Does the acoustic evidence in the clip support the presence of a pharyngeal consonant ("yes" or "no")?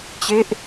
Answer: no